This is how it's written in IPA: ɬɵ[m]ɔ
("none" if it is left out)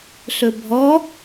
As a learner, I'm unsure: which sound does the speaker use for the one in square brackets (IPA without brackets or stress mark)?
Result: bʱ